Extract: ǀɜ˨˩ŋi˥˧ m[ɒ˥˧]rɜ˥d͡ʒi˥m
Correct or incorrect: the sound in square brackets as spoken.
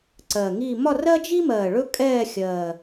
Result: correct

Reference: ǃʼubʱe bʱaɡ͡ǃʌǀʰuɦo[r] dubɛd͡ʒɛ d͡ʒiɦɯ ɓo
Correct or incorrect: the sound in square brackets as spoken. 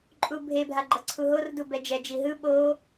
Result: correct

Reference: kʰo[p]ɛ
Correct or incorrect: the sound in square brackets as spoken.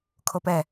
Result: correct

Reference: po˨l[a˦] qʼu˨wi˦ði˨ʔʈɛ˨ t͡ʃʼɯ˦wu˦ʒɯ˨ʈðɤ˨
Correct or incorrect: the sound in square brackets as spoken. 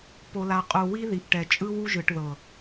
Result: incorrect: a˨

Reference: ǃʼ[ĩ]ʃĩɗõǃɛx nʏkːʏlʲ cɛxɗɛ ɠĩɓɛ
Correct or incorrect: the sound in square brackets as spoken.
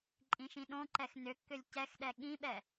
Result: correct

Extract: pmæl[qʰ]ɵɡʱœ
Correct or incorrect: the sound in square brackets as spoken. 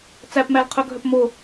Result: correct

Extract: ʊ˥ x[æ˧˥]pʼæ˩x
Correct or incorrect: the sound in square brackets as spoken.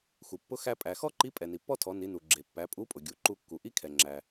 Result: incorrect: æ˧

